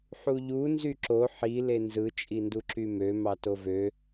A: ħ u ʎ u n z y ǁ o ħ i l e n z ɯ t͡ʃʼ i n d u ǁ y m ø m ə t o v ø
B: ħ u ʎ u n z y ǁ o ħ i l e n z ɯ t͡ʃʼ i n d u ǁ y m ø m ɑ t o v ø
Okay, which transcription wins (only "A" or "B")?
B